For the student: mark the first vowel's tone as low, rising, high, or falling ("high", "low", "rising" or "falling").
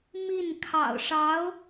falling